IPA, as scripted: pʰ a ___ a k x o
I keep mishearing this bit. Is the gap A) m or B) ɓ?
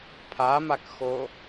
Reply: A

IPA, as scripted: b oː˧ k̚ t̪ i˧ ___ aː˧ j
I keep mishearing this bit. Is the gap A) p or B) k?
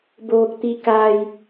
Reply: B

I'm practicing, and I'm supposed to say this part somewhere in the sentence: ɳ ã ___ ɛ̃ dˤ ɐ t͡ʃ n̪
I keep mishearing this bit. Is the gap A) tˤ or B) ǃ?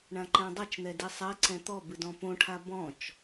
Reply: B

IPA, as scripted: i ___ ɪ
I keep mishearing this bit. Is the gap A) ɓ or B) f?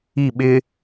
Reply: A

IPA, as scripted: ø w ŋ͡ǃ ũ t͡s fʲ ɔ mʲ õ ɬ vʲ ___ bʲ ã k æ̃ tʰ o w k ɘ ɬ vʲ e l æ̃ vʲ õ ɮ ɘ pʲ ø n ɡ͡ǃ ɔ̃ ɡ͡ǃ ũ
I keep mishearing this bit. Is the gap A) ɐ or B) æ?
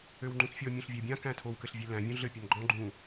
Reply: B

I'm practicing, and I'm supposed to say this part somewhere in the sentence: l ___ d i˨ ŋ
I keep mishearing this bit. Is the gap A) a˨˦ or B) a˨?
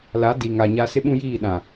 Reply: A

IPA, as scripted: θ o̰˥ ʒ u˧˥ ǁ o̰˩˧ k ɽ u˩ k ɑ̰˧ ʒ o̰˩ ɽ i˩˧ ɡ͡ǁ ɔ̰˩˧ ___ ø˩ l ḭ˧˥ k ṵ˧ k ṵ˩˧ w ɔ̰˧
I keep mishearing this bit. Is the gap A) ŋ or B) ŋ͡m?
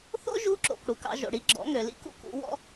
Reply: A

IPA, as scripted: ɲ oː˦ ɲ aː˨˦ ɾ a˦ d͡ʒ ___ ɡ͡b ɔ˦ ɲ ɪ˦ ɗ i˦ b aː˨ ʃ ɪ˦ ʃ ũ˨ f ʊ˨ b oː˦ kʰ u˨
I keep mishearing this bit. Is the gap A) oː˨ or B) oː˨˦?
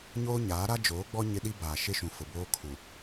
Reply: B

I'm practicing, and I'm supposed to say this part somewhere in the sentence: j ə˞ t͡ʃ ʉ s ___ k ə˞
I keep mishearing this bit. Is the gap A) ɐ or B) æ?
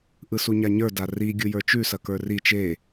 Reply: A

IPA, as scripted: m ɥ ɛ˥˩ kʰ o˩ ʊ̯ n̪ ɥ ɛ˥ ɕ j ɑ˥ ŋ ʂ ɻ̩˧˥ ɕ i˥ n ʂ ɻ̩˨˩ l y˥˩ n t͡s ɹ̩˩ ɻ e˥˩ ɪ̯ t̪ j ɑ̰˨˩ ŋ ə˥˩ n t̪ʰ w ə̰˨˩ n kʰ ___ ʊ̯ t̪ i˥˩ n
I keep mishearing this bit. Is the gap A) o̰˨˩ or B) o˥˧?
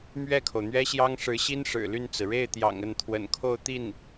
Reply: B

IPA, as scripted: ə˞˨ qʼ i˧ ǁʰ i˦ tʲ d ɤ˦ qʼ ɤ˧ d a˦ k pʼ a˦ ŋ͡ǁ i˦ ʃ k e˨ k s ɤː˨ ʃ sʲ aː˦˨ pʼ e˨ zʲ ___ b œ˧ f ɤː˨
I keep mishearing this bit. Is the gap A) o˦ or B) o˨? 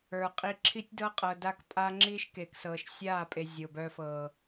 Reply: B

